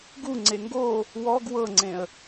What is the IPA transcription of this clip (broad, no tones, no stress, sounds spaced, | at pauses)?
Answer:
ɡ u ŋ͡ǀ e ŋ ɡ o | w ɔ ɡ w ɤ ŋ͡ǀ ẽ ə̯